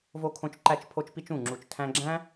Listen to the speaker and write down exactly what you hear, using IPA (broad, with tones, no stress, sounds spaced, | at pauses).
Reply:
v o˦ kʰ õ˦ t͡ʃ ǃ æ˦ t͡ʃ pʰ o˦ t͡ʃ p i˦ t͡ʃ ũ˦˨ ŋ͡ǁ u˧ t͡ʃ tʰ æ̃˧ ɡ͡ǁ æ̃˦